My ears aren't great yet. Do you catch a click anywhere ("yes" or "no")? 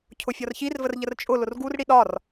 no